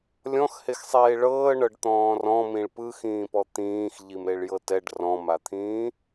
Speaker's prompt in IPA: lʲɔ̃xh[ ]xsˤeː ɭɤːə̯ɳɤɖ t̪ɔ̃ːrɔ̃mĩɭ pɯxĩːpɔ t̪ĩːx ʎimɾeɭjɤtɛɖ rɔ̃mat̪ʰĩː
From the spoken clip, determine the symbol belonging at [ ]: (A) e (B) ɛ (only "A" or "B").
A